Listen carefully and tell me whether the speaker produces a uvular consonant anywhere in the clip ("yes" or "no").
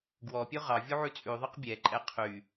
yes